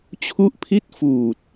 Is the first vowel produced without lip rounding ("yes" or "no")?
no